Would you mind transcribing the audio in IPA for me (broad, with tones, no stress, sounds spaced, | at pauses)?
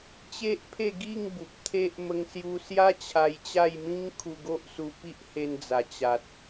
t͡ɕ e˦ ʔ pʰ e˥˧ ɡ i˥˧ ŋ b u˨ p̚ t̪ʰ e˦ ʔ m ə˧ ŋ s j u˧ s j a˦ t͡ɕʰ a˧ j t͡ɕ a˥˧ j m ĩ˦ ŋ kʰ u˧ ɡ o˦ ʔ s u˧ p i˦ ʔ h e˧ n d͡z a˨˩ t͡ɕ a˨ t̚